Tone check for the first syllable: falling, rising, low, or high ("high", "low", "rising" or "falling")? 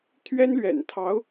high